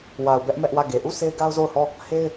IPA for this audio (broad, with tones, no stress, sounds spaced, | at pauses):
w a˨ ʊ̯ b ɛ˦ ʔ m ɛ˦ ʔ w ä˦˨ ɡ e˨ ʔ u˦˨ s e˦ ɪ̯ ɡ a˦ ʊ̯ z o˦˨ ʊ̯ h ɔ˦˨ | h e˦ ɪ̯